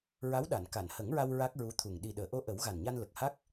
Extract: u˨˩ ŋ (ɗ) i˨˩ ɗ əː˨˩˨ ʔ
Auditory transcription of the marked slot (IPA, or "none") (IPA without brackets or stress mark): ɗ